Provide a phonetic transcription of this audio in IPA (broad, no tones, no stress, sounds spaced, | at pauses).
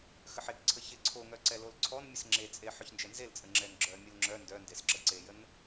x ə ħ e k ǀʰ ə ç e ǀʰ o ŋ œ ǀ ɛ l o l ǀʰ ɔ n mʲ ə s ŋ͡ǁ e t͡sʼ e ħ œ ç n d͡ʒ ɛ n z e l t͡sʼ ə ŋ͡ǁ ɛ n ɡ͡ǁ œ mʲ ə l ŋ͡ǁ œ n d œ n d e s ǁ ə ǀ e j ə n